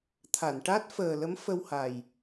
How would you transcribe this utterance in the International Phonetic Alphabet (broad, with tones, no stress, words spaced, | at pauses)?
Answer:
t̪ʰa˨˩˨nʈa˦˥t̚fəː˨˩ lə˧˥mfə˧wha˨˩j